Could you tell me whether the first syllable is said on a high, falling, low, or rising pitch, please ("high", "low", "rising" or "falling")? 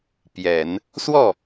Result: low